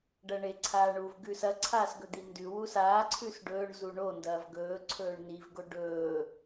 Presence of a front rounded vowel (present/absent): absent